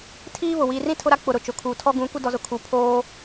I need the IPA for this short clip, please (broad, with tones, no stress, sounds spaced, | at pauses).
tʰ iː˦ β ʊ˨ w iː˨ r ĩ˦ tʰ ʊ˦ ɾ a˦ k͡p ʊ˨ ɾ ʊ˨ t͡ʃ ʊ˨ kʰ uː˨ tʰ ɔ˦ ɡ ũ˨˦ kʷ ɪ˦ d ɔ˨ z ʊ˨ kʰ u˨ pʰ oː˦